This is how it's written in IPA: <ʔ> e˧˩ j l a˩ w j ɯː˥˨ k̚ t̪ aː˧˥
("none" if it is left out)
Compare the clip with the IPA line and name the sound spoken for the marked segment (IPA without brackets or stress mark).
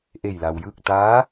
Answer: ʔ